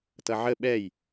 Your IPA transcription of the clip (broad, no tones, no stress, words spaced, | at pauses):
tʌʕə ɓɛj